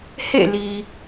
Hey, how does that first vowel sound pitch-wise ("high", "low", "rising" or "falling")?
falling